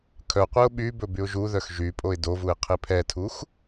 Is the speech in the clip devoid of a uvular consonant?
no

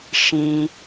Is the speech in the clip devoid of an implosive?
yes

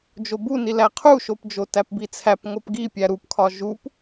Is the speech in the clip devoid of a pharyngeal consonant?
yes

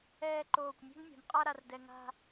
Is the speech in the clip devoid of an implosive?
yes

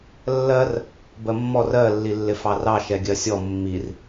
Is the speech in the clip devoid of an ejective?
yes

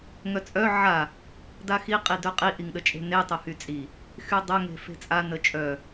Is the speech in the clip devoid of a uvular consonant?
no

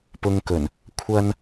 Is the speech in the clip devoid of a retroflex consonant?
yes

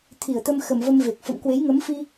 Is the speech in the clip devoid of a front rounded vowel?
yes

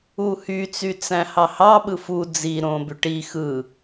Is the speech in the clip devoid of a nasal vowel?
no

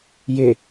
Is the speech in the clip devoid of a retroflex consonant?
yes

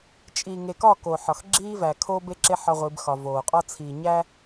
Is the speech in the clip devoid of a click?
no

